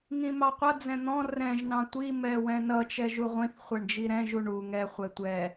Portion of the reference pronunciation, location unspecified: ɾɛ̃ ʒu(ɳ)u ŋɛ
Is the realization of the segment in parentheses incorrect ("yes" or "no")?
no